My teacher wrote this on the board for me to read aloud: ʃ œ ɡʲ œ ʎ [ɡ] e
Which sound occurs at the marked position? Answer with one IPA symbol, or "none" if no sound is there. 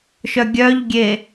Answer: ɡʲ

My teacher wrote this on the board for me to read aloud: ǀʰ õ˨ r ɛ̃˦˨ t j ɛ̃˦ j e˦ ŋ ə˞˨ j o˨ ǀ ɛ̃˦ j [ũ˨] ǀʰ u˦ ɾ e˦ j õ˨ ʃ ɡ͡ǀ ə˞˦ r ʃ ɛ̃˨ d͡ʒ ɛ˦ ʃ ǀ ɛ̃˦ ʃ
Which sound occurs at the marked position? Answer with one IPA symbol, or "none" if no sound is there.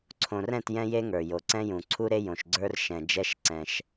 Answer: ũ˨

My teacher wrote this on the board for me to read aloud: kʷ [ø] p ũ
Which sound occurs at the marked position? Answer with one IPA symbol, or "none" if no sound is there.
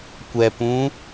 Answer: ɛ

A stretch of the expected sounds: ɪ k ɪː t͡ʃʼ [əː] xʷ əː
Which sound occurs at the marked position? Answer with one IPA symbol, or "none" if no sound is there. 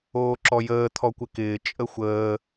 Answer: ə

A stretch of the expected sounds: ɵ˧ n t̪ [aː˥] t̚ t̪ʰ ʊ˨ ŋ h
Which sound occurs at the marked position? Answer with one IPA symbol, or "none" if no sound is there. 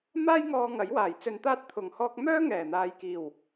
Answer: aː˥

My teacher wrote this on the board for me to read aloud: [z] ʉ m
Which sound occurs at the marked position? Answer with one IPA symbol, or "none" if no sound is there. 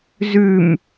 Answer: z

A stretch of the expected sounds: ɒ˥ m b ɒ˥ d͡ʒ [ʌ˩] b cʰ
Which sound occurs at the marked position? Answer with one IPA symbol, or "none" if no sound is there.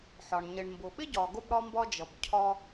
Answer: ʌ˩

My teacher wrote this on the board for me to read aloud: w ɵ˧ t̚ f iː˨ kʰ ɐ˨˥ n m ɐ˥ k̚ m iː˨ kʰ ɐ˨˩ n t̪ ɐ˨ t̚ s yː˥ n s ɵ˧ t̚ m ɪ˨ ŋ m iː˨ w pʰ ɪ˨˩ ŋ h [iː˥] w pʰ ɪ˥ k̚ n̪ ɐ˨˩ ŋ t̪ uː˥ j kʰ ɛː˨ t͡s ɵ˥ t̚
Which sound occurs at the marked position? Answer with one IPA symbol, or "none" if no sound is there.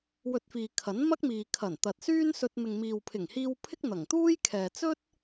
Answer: iː˧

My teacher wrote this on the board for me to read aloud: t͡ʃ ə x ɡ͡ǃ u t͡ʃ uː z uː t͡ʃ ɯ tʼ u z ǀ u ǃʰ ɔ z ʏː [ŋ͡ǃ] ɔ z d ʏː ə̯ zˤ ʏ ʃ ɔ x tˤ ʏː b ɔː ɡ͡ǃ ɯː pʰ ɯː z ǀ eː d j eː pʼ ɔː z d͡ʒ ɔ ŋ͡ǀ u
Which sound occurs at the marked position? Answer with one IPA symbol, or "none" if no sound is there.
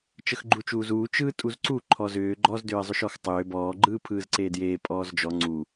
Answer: ɡ͡ǃ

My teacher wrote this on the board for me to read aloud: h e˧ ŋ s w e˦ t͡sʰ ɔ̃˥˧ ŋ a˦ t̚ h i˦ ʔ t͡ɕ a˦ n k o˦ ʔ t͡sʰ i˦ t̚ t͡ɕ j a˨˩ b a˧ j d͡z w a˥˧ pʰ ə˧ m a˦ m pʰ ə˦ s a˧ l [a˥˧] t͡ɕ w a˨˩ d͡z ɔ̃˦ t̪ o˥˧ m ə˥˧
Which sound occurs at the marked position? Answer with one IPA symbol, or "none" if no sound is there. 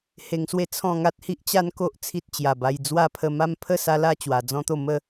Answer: a˥˧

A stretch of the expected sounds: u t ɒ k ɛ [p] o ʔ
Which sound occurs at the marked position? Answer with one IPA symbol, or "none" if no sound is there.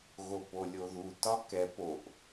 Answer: p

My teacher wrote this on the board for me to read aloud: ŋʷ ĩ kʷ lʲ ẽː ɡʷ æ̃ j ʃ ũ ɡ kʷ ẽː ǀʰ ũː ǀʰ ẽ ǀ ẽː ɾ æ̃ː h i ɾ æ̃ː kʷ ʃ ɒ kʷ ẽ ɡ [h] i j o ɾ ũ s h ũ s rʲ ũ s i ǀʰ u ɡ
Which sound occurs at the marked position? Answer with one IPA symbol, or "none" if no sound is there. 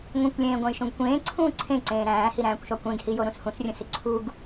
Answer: h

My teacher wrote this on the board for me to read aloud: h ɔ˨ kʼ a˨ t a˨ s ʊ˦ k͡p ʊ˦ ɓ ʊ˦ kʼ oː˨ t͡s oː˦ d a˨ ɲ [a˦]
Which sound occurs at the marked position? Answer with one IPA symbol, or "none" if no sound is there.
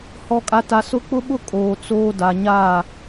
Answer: a˦˨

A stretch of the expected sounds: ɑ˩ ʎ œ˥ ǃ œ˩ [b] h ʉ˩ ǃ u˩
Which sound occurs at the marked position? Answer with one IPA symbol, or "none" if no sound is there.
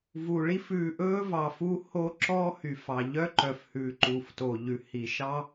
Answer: f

